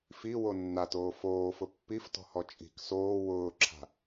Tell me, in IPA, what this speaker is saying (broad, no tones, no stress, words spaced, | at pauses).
fiwo nːatoː foːfʊ pːiftɔ̤hɔ t͡ʃʼi̤k soː wʊːǁʰa̤